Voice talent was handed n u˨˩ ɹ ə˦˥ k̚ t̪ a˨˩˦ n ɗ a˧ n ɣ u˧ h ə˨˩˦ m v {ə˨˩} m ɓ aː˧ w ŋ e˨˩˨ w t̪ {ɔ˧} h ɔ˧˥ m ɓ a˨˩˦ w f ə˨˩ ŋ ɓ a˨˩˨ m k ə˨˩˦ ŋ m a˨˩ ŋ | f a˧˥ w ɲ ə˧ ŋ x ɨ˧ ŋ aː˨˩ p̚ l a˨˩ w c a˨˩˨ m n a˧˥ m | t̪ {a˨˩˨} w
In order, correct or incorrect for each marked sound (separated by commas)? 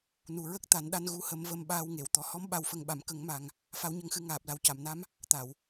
incorrect, incorrect, correct